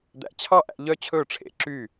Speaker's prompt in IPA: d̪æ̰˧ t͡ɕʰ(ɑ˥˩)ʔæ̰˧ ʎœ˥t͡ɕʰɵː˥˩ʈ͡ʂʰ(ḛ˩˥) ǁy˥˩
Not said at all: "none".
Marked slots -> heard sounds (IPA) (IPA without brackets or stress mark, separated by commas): ɑ˥˩, ḛ˩˥